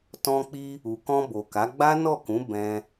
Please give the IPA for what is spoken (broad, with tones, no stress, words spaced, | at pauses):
tɔ̃˧k͡pi˧ | u˨kɔ̃˧bo˨ka˨˦ ɡ͡ba˦nɔ˦˨kũ˨˦ bɛ̃˦